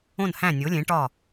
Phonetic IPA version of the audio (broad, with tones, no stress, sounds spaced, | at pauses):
õ˥˨ n h æ̃˥˨ nʲ o˨˥ lʲ ẽ˨˥ ʈ ɒ˥˨